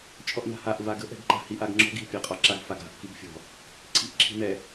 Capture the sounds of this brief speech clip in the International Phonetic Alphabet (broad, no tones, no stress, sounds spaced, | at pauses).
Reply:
t͡ʃʼ ɔ ʔ n a̤ h a ʔ v a ɡ ə̤ ʔ ɛ̤ ɡ ǃ a̤ h i ʔ a ɡ ŋ͡ǁ ɔ̤ ɡ i̤ pʲ a qʼ ɒ ǁ a ɡ f a ɡ a̤ ʔ k i ɡ fʲ ɔ̤ | ǀʰ i̤ ʔ ǁʰ i̤ n̪ ɛ